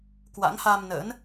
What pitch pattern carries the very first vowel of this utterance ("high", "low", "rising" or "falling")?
rising